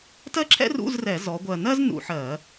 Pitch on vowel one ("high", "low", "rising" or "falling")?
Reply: high